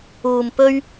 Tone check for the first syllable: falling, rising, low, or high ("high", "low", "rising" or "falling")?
low